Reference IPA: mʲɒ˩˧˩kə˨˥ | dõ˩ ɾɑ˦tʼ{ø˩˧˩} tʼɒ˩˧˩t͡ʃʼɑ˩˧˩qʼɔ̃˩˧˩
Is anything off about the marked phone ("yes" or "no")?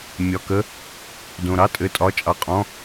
yes